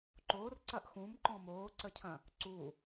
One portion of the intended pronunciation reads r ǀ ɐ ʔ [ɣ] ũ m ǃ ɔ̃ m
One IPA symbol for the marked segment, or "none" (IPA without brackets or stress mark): x